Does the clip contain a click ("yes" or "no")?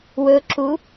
yes